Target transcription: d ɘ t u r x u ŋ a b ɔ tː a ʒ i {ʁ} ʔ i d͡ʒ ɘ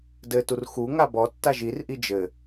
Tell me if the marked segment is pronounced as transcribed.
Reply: no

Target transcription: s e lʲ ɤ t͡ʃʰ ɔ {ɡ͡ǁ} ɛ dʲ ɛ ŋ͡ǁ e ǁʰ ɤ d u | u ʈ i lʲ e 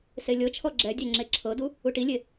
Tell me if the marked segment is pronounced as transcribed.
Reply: yes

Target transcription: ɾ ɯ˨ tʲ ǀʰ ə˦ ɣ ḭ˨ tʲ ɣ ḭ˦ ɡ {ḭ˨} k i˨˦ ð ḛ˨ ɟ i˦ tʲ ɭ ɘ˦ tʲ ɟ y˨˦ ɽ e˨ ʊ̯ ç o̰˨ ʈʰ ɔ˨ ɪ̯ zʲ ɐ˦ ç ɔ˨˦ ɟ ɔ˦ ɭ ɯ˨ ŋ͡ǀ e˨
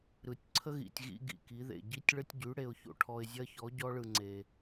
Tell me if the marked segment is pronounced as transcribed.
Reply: yes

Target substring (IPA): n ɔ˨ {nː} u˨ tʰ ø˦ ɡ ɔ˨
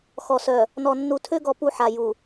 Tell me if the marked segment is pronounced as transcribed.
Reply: yes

